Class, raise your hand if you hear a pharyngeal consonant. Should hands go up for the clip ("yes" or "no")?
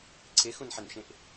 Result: yes